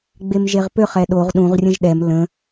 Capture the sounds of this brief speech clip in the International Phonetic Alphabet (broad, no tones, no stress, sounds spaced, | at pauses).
ɡ͡b e m ʒ e ʁ p ø χ ɛ ɗ o ʁ ɗ ũ ʁ rʲ ə̃ ʒ ɗ ɛ m l ə̃